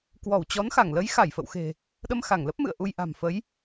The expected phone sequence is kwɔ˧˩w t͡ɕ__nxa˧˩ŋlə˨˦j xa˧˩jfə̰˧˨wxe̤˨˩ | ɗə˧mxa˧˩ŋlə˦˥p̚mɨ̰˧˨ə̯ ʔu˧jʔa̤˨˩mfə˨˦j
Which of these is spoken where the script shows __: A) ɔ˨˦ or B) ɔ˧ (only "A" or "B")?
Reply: A